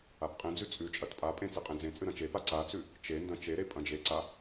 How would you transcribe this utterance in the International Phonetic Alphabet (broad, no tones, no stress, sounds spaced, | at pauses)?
a p qʼ ẽ d͡z ʉ t͡sʼ ʉ t͡ʃʼ ɐ t pʼ a pʼ ẽ t͡s e qʼ ẽ d͡z ẽ t͡sʼ ɨ ɾ ɐ̃ t͡ʃ e p a ǀ a t͡s ʉ | t͡ʃ e n d ɐ̃ t͡ʃ e ɾ e pʼ ɐ̃ d͡ʒ e ǀ a